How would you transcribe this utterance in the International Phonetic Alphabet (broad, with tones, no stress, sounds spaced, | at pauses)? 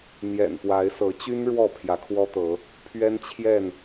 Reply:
n̪ j ɛ̰˨˩ n p w a˨˦ ɪ̯ s ɤ˨˦ t͡ɕ y˦ n ɻ w ɔ˥˨ pʰ j ä˨˦ kʰ w ɔ˦ t̪ ɤ˨˦ | pʰ ɥ ɛ˦ n t͡ɕʰ j ɛ˥˨ n